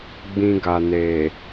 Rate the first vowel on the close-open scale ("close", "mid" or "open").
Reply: close